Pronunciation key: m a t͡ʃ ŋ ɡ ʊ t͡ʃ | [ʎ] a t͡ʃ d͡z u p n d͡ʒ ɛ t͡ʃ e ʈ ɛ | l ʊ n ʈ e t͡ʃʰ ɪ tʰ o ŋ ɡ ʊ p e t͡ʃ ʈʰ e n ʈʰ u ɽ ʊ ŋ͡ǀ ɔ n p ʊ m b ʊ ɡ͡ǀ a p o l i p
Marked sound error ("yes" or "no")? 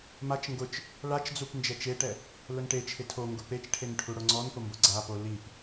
yes